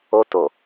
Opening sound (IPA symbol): o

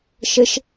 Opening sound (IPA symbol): ʃ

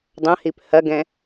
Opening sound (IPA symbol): dˤ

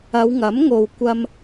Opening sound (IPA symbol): ɐ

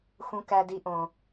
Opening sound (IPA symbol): x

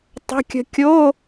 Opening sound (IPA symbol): tˤ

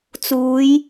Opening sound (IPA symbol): t͡s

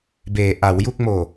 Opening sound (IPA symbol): b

